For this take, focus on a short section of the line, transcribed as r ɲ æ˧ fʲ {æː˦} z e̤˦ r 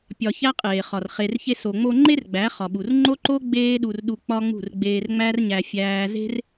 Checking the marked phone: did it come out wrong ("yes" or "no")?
no